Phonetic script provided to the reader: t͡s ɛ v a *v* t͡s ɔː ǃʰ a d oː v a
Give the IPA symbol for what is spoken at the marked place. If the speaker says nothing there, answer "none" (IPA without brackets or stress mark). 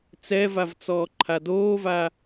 v